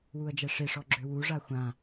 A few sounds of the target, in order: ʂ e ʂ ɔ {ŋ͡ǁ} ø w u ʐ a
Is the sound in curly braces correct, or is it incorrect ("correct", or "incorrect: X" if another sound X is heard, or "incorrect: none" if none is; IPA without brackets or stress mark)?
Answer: incorrect: ɡ͡ǁ